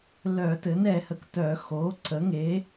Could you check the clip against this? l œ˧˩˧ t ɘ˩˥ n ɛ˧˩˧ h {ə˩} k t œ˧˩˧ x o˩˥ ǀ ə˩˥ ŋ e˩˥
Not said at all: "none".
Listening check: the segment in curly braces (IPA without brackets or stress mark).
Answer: ə˩